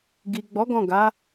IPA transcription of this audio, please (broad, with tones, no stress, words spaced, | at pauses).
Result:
ɡi˨ ɡ͡bɔ˨˦ ɡɔ̃˦˨ ɡa˨˦